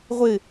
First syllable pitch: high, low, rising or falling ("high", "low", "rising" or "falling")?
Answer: falling